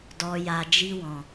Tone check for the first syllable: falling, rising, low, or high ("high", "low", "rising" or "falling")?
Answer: low